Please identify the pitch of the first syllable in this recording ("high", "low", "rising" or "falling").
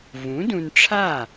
rising